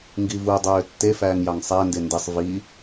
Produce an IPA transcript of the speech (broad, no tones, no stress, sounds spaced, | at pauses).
ŋ ɡ i v u dˤ øː tː e f æː ŋ j ɑ ŋ sˤ æ n d e n d e sˤ v i